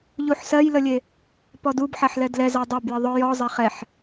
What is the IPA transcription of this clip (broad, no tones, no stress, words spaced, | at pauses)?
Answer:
ʎuħsɜjləlʲe | pɔdubħaħlɛ dlɛza dˤabjə ðˤʊ jɔzˤɛχ ɛħ